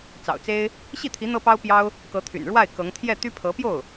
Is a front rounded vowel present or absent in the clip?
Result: present